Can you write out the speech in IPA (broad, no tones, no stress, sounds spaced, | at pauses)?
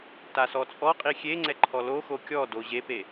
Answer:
t a s ɔ t͡sʼ ɔ qʼ i xʲ e ŋ͡ǀ ɛ ǃʰ ɔ l o x o kʲ ɔ d o ʑ e p e